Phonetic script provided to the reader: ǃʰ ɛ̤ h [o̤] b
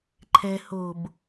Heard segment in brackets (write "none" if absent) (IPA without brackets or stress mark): o̤